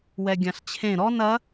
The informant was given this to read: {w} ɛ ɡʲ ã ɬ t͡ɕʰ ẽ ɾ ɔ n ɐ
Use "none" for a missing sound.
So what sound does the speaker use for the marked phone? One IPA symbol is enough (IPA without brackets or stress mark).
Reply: w